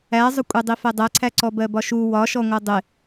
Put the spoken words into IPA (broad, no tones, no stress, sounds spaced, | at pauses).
æ zˤ ʊ kʷʼ ɛ dˤ i f ɛ dˤ æ ǀʰ æ ǀ ɔ b ɜ b ɒ ʃ u w ɒ ʃ ɔ ŋʷ ɜ dˤ ɪ